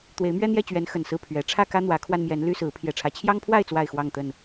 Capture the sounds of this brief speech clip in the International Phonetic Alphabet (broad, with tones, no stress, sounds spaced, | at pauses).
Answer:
t̪ w e˨˦ ɪ̯ m ɥ ɛ˦ n̪ j ɛ˥˨ t͡ɕ ɥ ɛ˨˦ n x ə˨˩ n s ɹ̩˥˨ pʰ ɥ ɛ˨˦ ʈ͡ʂʰ ä˥˨ k ä˦ n̪ w ä˨˦ kʰ w a˧ n m j ɛ˨˦ n l y˦ s ɹ̩˨˦ pʰ j ɛ˨˩ ʈ͡ʂʰ ä˨˦ t͡ɕʰ j ɑ˦ ŋ pʰ w a˥˨ ɪ̯ t͡s w a˥˨ ɪ̯ x w ɑ˥˨ ŋ t̪ ə˥˨ n